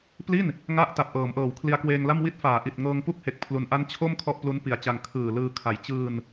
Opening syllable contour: falling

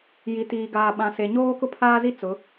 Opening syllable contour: low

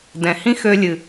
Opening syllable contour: low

